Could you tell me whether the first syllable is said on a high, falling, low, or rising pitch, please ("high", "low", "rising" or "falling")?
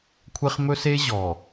high